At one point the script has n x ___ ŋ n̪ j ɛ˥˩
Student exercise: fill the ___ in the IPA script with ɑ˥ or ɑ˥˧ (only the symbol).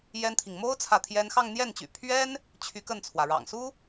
ɑ˥˧